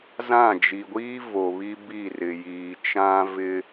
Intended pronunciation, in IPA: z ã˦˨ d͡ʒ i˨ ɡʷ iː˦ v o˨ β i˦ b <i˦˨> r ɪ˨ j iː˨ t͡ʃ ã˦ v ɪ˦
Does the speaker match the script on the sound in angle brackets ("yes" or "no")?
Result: yes